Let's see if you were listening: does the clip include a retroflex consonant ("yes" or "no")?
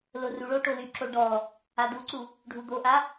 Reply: yes